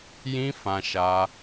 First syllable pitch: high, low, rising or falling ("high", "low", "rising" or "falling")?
high